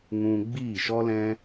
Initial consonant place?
velar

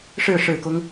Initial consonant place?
retroflex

